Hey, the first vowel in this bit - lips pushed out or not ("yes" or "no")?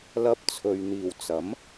no